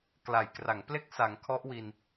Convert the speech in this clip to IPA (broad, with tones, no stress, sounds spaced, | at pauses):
k l a˨˩ j k r a˩˦ ŋ p l e˥˩ k̚ s a˩˦ ŋ kʰ ɔ˦˥ ʔ w i˧ n